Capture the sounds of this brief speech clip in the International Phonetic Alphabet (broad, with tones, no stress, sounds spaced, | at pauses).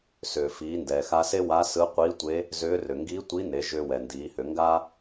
s ʏː˩ f iː˩˧ n d ɛː˩ x a˧ s e˥ w a˧˥ s ɯ˧˥ qʷ iː˧˥ tʷ e˧˥ | z ʏː˧˥ r ʏ˩ ŋ ɡ iː˧˥ tʷ i˧˥ n e˩˧ ʒ ʏː˧ w ɛ˩ n d iː˩˧ h ʏ˩˧ ŋ ɡ a˥